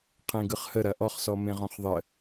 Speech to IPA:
qʰ ẽ ɡ ɯ χ h ə ɾ ɐ ʔ ɔ χ s ɔ m ẽ ʁ ɔ̃ χ ðˤ ə

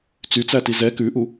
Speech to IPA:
t͡s y t͡s æ t i z ɛ k ʉ ʔ u

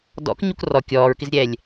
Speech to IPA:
d ɔ̰ k ɲ u k r ɔ kʲ ɔː ɹ k ɪ z ɾʲ ɛː lʲ

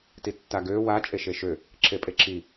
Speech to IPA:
t i tː a ɡ ø w a t͡ʃʼ e ʃ e ʃ ø | ǁʰ e pʼ e ǁʰ i

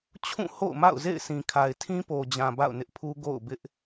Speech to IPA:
t͡ɕʰ ũ˦˨ h o̰˦˨ ʊ̯ m a̰˦˨ ʊ̯ z ḛ˦˨ ɪ̯ sʰ ĩ˨ kʰ a˨ ɪ̯ tʰ ĩ˦ p o˨ d͡ʑ ã˨ b a̰˦˨ ʊ̯ n ɪ˦ ʔ pʰ u˦ ɡ o̰˦˨ ʊ̯ b ɪ˦ ʔ

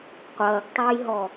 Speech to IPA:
qʷ ɐː ɡ tˤ o j ɦ ɔ

